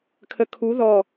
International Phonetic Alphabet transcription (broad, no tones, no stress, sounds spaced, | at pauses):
kʰ ə kʰ u ð ɔ